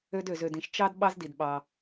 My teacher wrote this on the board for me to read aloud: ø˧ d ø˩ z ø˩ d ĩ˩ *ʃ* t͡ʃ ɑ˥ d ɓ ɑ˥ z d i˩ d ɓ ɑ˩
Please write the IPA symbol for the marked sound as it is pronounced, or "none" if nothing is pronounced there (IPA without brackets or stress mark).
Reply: ʃ